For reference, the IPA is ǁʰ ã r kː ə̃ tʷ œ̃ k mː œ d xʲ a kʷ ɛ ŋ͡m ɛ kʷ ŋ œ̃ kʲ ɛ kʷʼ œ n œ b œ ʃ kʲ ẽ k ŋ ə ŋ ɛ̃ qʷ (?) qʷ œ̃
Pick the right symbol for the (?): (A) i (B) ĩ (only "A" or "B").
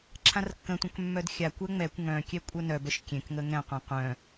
B